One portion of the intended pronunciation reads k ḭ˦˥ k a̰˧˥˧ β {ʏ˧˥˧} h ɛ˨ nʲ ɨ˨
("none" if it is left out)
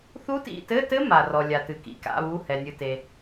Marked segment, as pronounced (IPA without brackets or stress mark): u˧˥˧